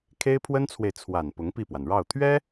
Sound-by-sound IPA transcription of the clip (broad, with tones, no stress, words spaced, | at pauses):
kʰe˥ɪ̯pʰwə˥nt͡sʰwe˨ɪ̯ t͡sʰwa˨˩n pʊ˧˥ŋpi˥˩pwa˩nɻɑ˥˩ʊ̯ t̪ʰɥɛ˥